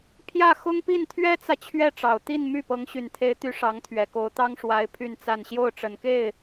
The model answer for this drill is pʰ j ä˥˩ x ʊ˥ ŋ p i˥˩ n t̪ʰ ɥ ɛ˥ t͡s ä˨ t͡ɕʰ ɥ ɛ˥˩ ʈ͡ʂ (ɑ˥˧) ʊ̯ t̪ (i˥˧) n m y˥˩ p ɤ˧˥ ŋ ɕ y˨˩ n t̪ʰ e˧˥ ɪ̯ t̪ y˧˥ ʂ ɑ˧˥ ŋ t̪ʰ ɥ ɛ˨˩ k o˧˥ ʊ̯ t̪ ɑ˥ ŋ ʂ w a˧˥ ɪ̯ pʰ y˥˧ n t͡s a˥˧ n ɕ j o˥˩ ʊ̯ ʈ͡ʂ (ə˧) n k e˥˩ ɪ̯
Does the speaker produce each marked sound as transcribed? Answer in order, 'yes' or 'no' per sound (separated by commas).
no, yes, no